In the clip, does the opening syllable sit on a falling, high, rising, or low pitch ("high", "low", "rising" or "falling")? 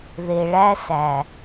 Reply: low